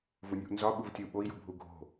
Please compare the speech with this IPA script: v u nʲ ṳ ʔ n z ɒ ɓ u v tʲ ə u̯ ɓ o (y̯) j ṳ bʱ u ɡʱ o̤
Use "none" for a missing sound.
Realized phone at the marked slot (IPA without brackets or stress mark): i̯